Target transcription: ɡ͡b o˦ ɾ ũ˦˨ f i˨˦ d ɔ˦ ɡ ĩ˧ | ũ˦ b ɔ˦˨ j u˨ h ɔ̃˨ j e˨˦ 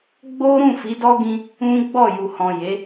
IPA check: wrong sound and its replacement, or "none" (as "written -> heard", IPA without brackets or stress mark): b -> ɡ͡b